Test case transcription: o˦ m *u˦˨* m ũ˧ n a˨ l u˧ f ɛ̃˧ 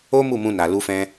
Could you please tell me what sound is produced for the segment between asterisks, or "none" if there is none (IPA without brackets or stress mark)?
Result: u˦˨